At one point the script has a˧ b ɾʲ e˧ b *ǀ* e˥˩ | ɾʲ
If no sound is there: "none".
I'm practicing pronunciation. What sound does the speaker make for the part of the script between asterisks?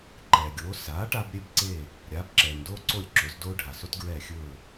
ǀ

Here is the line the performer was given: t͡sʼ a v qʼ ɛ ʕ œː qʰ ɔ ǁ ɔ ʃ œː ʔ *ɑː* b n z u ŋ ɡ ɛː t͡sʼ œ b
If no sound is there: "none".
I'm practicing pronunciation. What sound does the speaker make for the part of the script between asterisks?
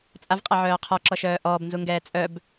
ɔː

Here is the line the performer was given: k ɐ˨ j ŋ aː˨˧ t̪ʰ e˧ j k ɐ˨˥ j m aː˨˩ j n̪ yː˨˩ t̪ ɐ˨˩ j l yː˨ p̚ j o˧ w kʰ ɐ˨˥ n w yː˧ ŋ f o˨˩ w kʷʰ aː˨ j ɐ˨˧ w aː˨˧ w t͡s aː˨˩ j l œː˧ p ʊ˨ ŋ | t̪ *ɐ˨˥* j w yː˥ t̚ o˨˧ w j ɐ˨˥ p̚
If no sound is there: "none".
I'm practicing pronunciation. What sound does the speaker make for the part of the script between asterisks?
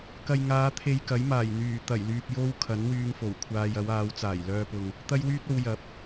ɐ˥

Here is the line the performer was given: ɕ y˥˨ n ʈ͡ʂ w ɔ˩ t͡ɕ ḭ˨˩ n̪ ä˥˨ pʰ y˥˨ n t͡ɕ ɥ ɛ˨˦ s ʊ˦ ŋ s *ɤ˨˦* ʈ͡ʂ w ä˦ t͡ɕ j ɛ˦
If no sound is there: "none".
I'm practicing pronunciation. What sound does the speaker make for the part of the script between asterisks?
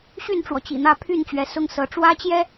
ɤ˨˦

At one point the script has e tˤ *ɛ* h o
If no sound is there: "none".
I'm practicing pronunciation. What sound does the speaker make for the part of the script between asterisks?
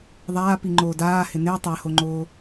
ɛ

